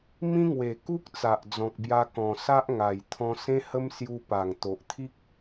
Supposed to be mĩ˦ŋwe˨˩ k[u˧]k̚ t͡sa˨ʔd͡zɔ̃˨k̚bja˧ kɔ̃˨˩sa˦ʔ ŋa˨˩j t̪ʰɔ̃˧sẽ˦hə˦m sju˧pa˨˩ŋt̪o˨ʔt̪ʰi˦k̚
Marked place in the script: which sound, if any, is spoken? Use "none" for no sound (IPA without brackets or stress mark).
u˦